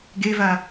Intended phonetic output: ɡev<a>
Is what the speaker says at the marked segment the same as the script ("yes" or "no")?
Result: yes